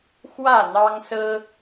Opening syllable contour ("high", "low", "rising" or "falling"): falling